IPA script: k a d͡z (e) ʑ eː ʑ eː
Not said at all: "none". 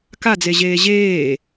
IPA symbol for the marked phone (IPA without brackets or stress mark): e